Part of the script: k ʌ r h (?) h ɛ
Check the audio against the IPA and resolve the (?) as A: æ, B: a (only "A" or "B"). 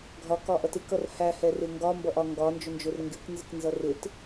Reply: A